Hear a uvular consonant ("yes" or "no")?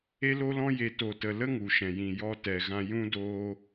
no